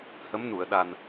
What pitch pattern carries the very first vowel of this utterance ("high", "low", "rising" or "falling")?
rising